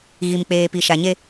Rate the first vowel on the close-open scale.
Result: close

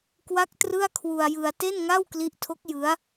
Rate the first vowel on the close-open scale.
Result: open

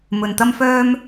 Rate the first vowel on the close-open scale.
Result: mid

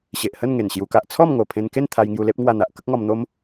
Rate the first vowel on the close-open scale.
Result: mid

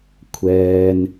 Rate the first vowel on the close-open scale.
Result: mid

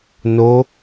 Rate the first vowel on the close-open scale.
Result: mid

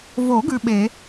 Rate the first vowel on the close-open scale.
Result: mid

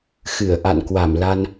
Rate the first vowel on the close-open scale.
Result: close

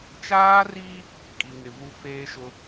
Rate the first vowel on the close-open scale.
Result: open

